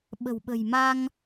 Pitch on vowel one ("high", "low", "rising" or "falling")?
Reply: low